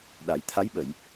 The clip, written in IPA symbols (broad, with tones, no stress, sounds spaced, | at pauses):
ɗ a˨˩˦ j t̪ʰ a˧˥ j ɓ ə˨˩˨ j